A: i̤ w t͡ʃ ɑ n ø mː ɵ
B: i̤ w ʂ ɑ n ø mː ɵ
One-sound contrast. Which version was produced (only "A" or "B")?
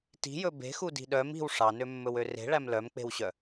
B